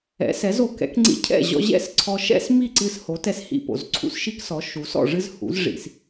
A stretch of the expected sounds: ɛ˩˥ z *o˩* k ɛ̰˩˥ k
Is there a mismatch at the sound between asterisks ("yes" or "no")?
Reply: no